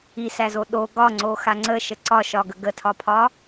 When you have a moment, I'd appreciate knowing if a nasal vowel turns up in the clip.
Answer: no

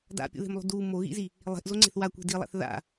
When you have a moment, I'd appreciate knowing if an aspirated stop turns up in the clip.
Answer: no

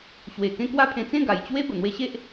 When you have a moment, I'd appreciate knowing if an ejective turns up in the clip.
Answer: no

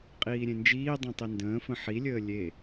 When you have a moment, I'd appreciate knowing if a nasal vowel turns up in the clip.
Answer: yes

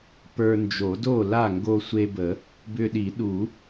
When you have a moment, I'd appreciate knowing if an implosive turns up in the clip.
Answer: yes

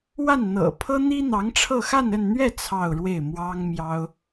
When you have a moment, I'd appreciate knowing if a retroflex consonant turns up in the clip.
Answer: yes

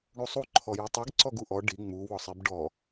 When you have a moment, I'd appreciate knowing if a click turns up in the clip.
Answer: yes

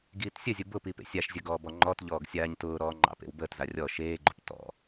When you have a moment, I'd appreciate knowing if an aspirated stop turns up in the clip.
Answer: no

